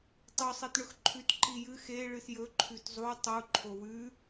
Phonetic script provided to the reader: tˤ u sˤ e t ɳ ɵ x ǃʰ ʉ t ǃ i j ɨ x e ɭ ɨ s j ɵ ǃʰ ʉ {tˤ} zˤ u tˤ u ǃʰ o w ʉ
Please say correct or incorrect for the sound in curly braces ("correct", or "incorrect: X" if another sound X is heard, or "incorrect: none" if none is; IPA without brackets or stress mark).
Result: incorrect: t